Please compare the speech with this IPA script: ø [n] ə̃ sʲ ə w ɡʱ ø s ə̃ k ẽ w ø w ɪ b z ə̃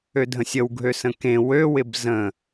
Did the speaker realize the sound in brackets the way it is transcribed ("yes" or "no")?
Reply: no